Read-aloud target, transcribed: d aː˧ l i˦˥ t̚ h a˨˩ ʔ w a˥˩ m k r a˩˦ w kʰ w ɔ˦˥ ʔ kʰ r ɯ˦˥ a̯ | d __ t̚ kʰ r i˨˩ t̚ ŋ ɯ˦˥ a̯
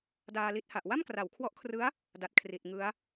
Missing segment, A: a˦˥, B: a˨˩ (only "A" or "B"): B